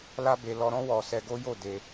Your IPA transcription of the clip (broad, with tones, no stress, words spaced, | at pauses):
la˦be˧ lɔ˧ɾɔ̃˦ wɔ˧ sɛ˧ ɡo˦jo˦˨ de˧